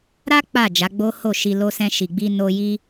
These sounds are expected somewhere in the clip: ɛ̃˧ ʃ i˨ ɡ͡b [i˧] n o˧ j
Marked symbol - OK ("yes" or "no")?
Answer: yes